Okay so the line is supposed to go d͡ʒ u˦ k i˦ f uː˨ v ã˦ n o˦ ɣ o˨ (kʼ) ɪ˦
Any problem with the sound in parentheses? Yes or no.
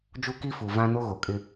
no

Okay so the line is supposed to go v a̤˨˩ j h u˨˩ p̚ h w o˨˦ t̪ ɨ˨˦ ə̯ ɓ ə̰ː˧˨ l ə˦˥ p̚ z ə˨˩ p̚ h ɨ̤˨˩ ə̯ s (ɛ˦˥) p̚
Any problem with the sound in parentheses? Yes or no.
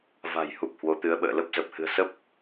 yes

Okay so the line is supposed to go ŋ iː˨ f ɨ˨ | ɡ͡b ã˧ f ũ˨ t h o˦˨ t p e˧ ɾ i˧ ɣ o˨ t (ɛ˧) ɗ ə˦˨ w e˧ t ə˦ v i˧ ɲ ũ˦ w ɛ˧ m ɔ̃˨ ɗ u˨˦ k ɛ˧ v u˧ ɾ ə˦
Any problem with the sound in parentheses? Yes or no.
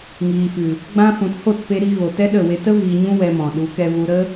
yes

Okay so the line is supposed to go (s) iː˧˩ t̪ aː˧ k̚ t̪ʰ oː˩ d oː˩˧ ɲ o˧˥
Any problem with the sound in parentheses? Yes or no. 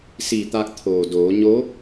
no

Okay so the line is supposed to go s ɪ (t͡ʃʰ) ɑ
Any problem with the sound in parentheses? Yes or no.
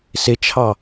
no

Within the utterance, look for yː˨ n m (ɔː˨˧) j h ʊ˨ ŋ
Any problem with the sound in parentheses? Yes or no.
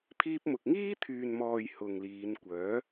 yes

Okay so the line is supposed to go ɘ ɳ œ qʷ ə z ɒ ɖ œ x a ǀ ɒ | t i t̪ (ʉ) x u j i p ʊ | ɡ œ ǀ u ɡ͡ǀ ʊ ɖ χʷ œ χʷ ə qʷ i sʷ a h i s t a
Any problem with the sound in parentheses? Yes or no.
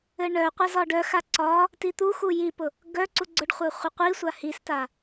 yes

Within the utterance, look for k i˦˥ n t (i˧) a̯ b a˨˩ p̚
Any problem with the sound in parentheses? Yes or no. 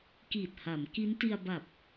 no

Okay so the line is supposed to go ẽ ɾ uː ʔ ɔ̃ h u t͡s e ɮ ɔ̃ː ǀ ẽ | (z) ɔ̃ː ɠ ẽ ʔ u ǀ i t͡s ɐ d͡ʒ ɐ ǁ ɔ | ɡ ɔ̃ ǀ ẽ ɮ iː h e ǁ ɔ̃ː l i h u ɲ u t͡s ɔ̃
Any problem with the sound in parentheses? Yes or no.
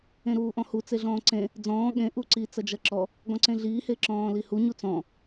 yes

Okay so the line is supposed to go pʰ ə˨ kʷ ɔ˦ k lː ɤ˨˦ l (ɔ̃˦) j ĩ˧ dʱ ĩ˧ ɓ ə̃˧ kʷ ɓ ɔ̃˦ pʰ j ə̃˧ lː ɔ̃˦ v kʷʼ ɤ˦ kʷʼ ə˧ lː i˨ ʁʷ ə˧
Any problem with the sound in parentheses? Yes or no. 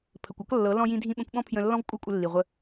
yes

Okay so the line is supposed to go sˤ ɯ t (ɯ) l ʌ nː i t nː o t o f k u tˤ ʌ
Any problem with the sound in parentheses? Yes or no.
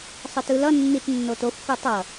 no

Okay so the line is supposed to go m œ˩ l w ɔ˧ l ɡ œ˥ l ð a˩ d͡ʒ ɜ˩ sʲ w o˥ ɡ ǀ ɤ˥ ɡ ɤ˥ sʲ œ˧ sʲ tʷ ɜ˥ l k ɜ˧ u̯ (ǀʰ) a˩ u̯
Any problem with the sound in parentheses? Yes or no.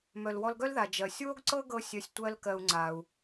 yes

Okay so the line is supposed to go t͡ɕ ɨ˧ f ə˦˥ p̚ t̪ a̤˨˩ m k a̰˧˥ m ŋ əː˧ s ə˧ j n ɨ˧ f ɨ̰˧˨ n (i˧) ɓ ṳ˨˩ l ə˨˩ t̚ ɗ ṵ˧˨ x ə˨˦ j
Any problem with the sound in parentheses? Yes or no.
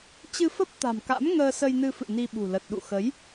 no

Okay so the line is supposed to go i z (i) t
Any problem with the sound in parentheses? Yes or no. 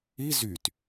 yes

